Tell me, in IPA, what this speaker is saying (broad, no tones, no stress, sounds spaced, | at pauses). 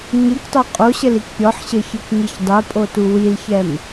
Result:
ɲ ɯ k tˤ ø qʼ o ɕ ɘ l i k pʲ ɔ ħ ɕ ɘ ç ɯ k ɲ i ç dˤ ɘ pʼ o t u w i l ç ɛ m